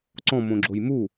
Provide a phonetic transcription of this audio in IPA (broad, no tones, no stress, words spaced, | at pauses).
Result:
ǀɔ̃ mõɡ͡ǁojmu